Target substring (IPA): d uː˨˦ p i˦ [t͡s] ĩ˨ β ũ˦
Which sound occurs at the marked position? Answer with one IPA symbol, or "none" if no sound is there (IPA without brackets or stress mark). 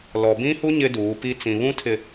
t͡s